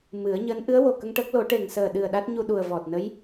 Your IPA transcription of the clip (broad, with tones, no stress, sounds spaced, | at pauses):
m ɨ˨˩˦ ə̯ ɲ əː˧˥ n ʔ ɨ˧˥ ə̯ w o˨˩ k ə˧ ŋ ʈ əː˦˥ k̚ l o˨˩˦ ʈ e˨˩ ŋ s əː˨˩ ɗ ɨ˨˩ ə̯ ɗ a˦˥ t̚ ɲ u˧ ɗ u˨˩ ə̯ v ɔ˨˩ t̚ n ə˧˥ j